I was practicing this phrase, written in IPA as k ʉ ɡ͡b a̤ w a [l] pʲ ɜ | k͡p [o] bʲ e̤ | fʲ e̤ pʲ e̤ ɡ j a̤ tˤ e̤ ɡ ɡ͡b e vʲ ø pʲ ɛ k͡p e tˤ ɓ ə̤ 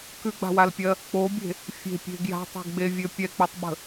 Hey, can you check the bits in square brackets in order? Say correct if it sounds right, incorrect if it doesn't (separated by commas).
correct, correct